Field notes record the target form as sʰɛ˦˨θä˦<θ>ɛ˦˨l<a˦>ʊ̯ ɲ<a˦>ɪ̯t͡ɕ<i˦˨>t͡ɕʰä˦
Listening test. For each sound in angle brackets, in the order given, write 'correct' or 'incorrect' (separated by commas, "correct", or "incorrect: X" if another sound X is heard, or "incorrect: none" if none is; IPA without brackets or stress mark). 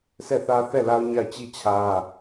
correct, correct, incorrect: a˦˨, correct